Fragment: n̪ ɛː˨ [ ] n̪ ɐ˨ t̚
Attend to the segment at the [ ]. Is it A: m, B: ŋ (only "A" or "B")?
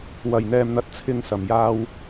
A